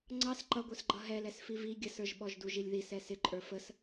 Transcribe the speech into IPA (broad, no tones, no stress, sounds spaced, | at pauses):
ŋ͡ǀ ɑ s ǃ ʌ ɡʷ ə˞ s ɡ͡ǃ ʌ ɦ ɛ l ɛ s f i v i ɡʲ ə s ə˞ ʒ ɓ ɔ ʒ d u ʒ i lʲ ð i s ɛ s ɪ ǃʼ ə˞ f ə s